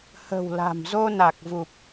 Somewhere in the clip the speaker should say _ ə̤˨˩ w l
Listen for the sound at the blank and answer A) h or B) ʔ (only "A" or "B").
A